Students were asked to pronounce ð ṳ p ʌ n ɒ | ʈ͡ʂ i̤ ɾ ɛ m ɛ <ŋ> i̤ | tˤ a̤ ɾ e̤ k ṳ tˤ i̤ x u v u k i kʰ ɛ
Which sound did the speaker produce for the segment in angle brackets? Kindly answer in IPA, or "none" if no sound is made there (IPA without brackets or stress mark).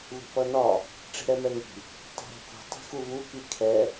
ŋ